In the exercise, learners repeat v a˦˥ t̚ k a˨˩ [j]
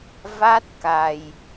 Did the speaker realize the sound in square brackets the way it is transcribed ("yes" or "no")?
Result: yes